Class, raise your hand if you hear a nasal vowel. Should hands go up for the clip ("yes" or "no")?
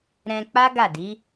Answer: yes